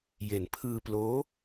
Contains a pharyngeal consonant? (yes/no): no